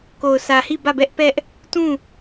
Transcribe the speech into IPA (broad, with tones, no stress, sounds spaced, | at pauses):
k o˨ ʊ̯ sʰ ä˨ h i˦˨ b ä˦˨ b ɛ˦ ʔ p ɛ˦ ʔ | t ũ˦˨